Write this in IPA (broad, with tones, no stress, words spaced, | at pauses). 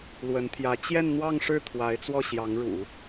lwə˧˥nt̪ʰjä˧˥ t͡ɕjɛ˥˧nn̪wɑ˥˧ŋʂɻ̩˥˩ t̪ʰwa˧˥ɪ̯t͡swɔ˥˩ɕjɑ˧˥ŋɻṵ˨˩˦